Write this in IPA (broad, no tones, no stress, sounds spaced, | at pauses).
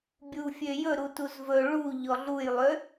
bʲ u fʲ ø j ɵ ɾ u t u z v ɵ ɭ u ʎ ɔ ɮ u j lˠ ø